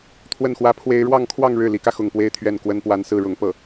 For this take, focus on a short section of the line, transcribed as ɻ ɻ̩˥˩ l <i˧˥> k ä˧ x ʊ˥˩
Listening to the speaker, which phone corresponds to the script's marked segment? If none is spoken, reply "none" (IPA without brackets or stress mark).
i˧˥